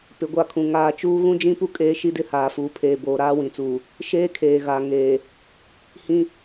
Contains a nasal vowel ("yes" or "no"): yes